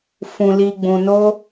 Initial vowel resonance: nasal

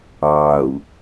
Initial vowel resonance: oral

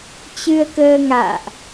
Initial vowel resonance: oral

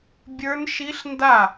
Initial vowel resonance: oral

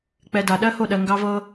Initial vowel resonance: oral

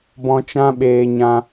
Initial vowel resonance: nasal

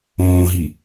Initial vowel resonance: nasal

